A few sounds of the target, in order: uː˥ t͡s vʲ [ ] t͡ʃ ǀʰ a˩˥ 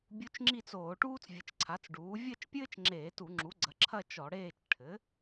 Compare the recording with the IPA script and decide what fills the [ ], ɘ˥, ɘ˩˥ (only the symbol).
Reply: ɘ˩˥